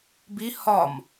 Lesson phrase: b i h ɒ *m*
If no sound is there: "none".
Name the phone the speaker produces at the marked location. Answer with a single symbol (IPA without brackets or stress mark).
m